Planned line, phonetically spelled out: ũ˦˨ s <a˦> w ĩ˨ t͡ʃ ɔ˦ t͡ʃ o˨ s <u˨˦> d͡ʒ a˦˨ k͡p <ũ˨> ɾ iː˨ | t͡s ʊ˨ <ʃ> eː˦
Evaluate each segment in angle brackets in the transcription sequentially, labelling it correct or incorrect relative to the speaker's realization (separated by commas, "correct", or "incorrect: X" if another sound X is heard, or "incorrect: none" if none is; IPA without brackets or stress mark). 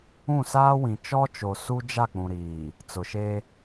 incorrect: aː˦, incorrect: u˦, correct, correct